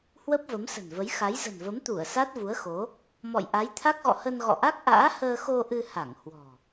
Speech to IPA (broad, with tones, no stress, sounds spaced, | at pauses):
h w ə˦˥ p̚ v ə˨˦ m s ə̤˨˩ n v ə˨˦ j x a˨˦ j z ə̤˨˩ n v ə˨˦ m t̪ u˧˩ ə̯ s a˦˥ t̚ v u˨˦ ə̯ x o˨˦ | m ɔ̰˧˨ j ʔ a˨˦ j t̪ʰ a˦˥ k̚ ɣ ɔ̰˧˨ h ə˧ n ɣ ɔ̰˧˨ ʔ a˦˥ k̚ ʔ a̰ː˧˥ h əː˧ x o˧ ʔ ɨ˧ h a˧˩ ŋ h w ɔ̤˨˩